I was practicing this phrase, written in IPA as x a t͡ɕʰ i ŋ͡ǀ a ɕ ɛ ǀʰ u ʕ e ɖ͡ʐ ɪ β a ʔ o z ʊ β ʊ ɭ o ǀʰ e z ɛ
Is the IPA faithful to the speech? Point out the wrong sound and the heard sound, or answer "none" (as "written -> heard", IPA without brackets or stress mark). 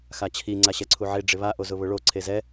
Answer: none